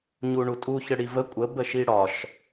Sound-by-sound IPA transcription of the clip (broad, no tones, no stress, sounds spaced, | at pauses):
ɲ u ɳ u tʼ u ç ə ɽ i v ə kʷʼ ə b ə ʃ i ɽ ɒ ʃ